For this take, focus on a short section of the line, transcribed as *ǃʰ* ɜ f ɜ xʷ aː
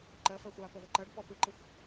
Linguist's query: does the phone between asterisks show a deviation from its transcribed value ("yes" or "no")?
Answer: yes